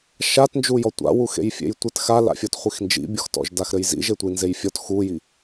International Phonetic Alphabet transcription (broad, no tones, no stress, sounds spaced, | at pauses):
ʃ a t n d͡ʒ u j ɔ tʷ a̰ w u x ḛ j fʲ ḛ j tʷ ɘ t x a l a̰ fʲ ɔ t χʷ i x n d͡ʒ ḭ bʲ ɔ x t ɔ̰ ʒ d a x ɾ ɘ j z ḭ ʒ e tʷ i n z e j fʲ ɔ t x u j i